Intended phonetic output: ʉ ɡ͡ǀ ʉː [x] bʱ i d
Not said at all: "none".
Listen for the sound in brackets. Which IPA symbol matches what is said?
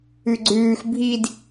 x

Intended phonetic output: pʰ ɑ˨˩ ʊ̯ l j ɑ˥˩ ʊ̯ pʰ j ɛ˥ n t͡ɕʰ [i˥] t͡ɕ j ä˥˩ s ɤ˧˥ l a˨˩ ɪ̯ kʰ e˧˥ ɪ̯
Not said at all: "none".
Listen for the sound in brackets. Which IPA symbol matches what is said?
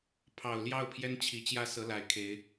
i˨˩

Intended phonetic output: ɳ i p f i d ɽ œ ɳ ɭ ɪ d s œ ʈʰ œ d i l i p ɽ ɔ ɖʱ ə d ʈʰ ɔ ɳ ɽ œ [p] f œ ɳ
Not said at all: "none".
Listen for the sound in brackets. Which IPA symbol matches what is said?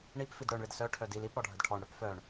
p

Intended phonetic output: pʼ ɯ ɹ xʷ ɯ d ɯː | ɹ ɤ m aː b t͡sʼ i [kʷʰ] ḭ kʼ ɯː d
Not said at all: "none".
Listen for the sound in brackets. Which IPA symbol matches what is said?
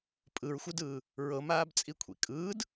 kʷʰ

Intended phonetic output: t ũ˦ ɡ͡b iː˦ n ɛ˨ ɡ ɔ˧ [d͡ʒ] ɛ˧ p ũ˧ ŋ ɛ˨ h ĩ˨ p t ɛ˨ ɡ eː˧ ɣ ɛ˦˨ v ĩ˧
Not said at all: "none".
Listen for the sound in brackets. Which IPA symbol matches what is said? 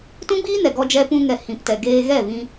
d͡ʒ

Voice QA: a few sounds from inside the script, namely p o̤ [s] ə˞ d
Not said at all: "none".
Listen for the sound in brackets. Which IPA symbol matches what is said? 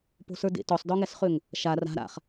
s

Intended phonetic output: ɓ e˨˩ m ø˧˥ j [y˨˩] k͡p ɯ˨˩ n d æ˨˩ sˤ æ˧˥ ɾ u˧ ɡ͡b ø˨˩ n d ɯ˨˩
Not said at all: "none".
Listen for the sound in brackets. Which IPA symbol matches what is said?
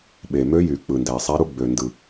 y˨˩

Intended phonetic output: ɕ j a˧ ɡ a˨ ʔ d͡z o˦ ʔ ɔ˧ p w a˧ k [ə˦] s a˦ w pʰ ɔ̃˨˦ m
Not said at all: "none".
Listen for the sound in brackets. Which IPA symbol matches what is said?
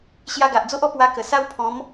ə˨˩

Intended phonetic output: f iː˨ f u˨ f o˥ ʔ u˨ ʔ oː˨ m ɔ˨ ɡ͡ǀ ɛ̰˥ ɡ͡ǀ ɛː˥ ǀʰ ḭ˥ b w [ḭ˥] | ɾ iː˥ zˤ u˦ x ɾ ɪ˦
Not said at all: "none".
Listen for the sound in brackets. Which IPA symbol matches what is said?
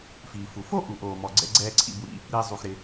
ḭ˥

